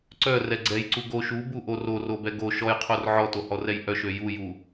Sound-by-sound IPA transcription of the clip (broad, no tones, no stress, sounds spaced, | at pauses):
ǀ œ r ɛ ɡ͡ǀ ɛ j ǀ u ɡ o ʃ u b u ʔ o r o r o b ɛ ɡ o ʃ ɔ j qʰ o r ʕ ɔ t o h ɔ r ɛ j ʔ œ ʃ ø j u j u